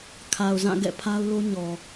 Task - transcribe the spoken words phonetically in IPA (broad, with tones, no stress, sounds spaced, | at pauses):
kʰ a˨ ʊ̯ z ã˦˨ ɡ ɛ̰˦˨ pʰ a˦ ʊ̯ l o˦ ɲ ɔ˨